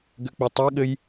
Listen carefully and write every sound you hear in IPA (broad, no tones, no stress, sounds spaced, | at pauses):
ɡ ʏ k͡p ʏ tˤ ɛ ɠ ɘ j